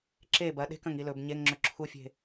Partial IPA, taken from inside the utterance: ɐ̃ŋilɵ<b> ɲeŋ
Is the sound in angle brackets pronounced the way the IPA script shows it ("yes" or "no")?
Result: yes